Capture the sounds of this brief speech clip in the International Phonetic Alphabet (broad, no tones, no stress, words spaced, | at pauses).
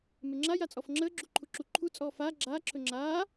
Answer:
meŋ͡ǁa jat͡sʼɔfŋ͡ǁəː ɡ͡ǁuǃʰuǁu ǃʰu t͡sʼɔːfaː ɡ͡ǁaː ǁʰɵŋ͡ǁaː